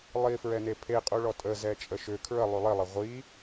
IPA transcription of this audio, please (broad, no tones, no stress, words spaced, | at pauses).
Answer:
lˠifɹɛne pʰeqʼuɭɔ tʼəzɛt͡ʃʼə ʃʏ kʰɹəlˠy lˠilˠə ʁʷi